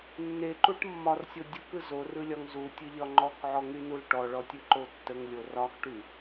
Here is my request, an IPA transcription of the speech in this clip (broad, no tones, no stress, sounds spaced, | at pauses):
nː e ǃ u ʈ mː ɒ r sʲ o dʲ u k ɯ z o r ɯ lʲ ɒ ŋ z u tʲ ɯ ʎ ɒ ŋ͡ǃ ɔ k ʕ ɔ ŋ y n u l ʈ ɔ ɭ ɔ tʲ ɯ ǃ o tː ə ŋ lʲ o r ɒ x ʈ y